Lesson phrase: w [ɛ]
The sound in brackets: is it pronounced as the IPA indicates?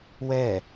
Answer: yes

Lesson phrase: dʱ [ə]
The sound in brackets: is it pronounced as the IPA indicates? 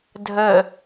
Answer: yes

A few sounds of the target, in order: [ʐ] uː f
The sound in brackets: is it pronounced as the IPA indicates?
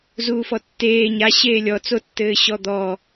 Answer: no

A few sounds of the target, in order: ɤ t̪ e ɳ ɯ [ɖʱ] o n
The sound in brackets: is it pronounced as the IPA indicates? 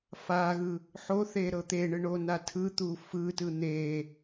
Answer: no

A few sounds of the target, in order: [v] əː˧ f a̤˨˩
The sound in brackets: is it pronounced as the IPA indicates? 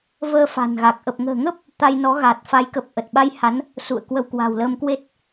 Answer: yes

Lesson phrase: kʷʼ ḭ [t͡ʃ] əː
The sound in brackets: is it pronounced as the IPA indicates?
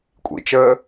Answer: yes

